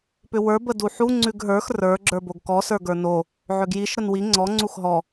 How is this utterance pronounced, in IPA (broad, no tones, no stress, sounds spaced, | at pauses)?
p ʏ w ə˞ b ə d u ħ u ŋ͡ǀ ʉ ɡ ɦ ə˞ x r ə˞ ɡ͡ǁ ə˞ b o ɡ k ɔ s ə˞ ɡ ə˞ n o | ʕ ʏ ɡ j i ʃ ɾ ə n w i ŋ͡ǀ ɔ ŋ͡ǀ u x ɦ ɔ